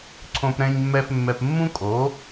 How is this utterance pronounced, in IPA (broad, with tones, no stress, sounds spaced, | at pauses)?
ǀʰ õ˧ p ɾ ɛ̃˧ ɲ mː ɛ˧ f mː ɛ˧ p mː ũ˥ kʼ o˩˥